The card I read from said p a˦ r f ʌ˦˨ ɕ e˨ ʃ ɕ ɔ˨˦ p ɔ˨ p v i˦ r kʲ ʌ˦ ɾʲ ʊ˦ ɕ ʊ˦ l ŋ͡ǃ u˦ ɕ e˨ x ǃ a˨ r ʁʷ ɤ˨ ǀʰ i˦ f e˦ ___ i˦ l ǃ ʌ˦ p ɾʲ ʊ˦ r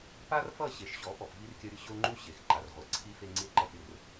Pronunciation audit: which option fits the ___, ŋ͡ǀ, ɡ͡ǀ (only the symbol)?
ŋ͡ǀ